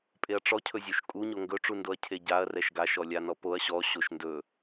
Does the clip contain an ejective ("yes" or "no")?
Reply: yes